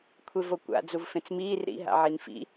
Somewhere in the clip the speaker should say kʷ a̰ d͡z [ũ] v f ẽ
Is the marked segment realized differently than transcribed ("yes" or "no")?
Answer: yes